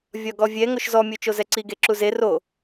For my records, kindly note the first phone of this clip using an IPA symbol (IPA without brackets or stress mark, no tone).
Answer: vʲ